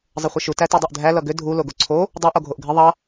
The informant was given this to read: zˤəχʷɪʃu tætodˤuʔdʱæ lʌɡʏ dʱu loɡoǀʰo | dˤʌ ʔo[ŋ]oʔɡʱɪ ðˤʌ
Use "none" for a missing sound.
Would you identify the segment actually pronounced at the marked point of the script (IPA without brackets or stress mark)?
ɡʱ